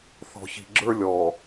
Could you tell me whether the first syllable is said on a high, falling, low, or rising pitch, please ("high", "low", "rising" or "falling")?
low